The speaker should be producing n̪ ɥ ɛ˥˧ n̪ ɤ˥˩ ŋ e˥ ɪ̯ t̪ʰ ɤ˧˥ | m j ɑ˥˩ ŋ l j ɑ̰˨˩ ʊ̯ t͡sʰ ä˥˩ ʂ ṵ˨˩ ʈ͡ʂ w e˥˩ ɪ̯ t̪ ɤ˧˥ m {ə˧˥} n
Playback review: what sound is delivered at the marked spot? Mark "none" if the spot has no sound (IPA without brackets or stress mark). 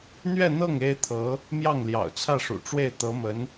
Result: ə˧˥